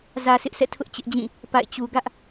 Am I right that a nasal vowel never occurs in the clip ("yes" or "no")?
no